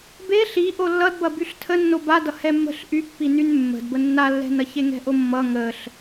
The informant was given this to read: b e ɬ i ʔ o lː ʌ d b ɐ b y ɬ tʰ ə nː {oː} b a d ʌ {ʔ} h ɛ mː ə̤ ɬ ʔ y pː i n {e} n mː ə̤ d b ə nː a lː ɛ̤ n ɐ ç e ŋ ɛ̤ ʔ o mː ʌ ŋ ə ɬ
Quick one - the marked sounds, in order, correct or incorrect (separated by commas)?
incorrect, incorrect, incorrect